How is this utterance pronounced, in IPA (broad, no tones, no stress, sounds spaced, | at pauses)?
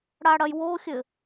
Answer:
ɽ a ɽ ɐ j w o xʲ ɘ